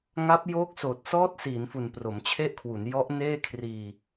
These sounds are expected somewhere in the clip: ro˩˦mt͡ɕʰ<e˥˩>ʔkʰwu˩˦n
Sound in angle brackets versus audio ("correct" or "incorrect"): correct